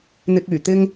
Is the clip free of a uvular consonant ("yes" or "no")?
yes